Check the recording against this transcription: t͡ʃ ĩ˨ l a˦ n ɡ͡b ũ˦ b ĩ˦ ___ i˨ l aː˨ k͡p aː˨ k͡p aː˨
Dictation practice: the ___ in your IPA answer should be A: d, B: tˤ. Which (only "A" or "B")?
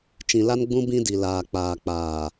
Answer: A